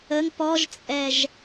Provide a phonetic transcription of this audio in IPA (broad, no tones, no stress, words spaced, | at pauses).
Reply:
əŋ pɔʒt͡sʼɛʒ